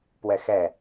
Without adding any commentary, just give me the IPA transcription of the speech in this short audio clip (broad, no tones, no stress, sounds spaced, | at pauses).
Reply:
p w ɛ x ɛ